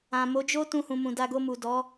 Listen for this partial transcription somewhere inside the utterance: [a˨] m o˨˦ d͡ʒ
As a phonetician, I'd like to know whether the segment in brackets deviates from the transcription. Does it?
yes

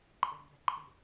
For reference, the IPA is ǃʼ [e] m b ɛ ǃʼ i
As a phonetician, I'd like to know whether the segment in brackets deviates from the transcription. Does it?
yes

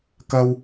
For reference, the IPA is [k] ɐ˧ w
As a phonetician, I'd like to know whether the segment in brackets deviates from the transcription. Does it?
no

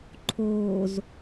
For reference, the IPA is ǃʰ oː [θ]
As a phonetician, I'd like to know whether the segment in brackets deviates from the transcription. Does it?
yes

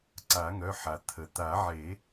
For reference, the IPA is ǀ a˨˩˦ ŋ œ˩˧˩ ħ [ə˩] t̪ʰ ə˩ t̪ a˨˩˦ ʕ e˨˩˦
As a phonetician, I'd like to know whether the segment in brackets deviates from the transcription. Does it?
yes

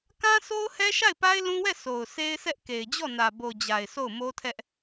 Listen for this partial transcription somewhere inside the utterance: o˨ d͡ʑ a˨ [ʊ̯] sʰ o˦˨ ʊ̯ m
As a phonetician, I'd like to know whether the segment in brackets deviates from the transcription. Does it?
yes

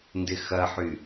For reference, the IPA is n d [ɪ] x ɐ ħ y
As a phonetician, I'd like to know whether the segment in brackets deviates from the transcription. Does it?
no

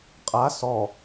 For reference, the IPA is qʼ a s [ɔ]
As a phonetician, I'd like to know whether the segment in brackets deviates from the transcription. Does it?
no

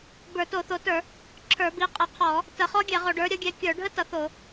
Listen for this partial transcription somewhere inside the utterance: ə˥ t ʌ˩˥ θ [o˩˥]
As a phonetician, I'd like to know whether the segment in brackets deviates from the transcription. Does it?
yes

